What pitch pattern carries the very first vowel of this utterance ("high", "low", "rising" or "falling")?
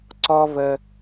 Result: high